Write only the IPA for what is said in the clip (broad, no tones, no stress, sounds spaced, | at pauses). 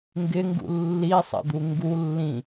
ŋ ɡ ɪ ŋ ɡ ṵ lː i sˤ ə̰ d̪ u ŋ ɡ u lː ĩ